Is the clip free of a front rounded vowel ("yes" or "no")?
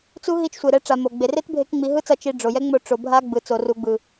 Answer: yes